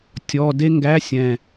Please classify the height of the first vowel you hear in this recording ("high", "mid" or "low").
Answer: mid